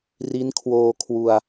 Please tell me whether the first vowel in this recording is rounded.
no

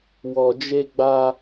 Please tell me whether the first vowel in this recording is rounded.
yes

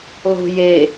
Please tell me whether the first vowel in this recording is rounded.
yes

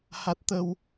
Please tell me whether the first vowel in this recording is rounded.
no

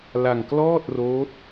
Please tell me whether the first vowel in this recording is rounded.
no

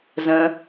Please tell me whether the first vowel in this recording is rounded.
no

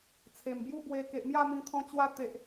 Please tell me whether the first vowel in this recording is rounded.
no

